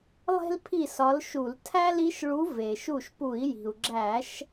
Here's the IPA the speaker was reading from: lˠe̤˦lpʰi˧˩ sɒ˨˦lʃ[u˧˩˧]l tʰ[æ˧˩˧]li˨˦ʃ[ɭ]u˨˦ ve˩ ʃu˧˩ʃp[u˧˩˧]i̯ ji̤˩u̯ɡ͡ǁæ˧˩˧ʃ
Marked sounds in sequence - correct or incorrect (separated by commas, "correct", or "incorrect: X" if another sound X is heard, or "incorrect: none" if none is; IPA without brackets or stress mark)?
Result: correct, incorrect: æ˦, correct, correct